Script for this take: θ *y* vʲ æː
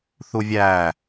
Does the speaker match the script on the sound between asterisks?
no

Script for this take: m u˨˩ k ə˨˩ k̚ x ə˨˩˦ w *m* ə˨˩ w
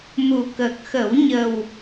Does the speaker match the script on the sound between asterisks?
no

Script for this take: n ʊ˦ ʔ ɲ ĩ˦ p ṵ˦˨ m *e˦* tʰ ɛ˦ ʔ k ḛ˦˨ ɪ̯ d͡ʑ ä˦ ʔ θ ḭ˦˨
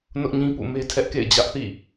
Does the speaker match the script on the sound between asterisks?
yes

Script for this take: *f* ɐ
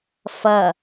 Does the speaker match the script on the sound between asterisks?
yes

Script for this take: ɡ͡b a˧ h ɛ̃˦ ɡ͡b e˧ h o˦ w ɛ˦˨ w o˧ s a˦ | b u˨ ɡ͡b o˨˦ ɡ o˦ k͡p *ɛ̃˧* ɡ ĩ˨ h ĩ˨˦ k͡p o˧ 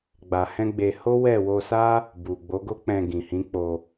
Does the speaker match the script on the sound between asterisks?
yes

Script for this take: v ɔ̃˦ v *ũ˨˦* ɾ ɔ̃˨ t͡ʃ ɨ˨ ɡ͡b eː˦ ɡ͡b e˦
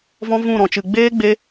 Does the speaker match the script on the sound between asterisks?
no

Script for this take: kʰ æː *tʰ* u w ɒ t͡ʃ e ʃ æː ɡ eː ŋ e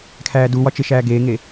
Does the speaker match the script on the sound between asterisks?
no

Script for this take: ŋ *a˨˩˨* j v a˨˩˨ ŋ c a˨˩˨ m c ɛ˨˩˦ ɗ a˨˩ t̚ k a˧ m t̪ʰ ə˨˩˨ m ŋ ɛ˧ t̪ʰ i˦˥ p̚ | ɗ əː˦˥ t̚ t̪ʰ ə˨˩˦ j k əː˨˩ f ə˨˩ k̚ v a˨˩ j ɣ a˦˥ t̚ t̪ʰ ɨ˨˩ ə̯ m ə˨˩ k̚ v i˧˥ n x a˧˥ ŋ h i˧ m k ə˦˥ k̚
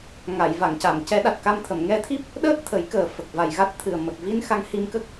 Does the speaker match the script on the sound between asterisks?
yes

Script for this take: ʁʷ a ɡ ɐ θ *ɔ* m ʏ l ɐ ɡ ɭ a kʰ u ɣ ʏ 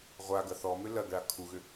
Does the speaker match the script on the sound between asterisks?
yes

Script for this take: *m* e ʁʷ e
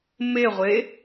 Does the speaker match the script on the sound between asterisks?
yes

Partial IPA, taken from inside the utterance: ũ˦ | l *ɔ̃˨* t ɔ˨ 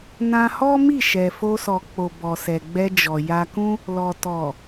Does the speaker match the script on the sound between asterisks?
no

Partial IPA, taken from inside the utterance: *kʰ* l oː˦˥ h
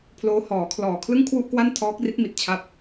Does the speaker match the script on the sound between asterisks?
no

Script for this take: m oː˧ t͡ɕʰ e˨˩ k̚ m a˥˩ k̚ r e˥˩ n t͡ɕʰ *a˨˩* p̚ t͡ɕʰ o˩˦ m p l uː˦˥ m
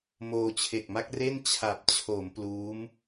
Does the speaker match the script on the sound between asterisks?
yes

